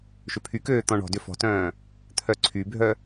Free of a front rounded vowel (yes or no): no